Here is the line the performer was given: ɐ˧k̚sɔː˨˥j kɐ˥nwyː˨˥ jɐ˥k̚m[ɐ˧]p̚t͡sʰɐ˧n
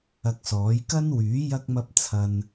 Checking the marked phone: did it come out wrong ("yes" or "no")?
yes